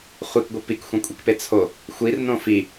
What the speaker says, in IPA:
χʷ i k ɡʷ i p i k xʷ ẽ kʷʼ i k p e t͡sʰ o | xʷ i r n õ f i

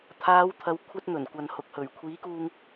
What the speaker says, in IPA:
t̪ʰ aː˨˧ w t̪ʰ ɐ˨˧ w kʷʰ ɐ˧ t̚ n̪ ɵ˨˩ n kʷ ɐ˨ n h ʊ˨ k̚ h ɵ˨˩ ɥ kʷʰ iː˨˥ k uː˧ ŋ

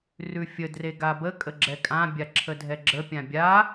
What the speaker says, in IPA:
r ʉ fʲ ə d r e ɡ a b ə kʼ ə ɡ͡ǁ ɛ kʼ ã bʲ a ǁʰ ə dʱ ɛ ɡ͡ǁ ə pʲ ã bʲ a

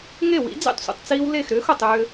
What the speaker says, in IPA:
ŋ e˥˩ w ḭ˩˥ d͡z ḛ˥˩ tˤ sʷ ḭ˩ tˤ t͡s iː˧ w l e˥˩ x ɾ ʏː˩˥ x ʊ˩ tˤ ʏː˧

